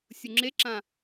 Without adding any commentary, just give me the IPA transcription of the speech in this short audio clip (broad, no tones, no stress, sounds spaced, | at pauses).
sʲ u ŋ͡ǁ e ǁ ã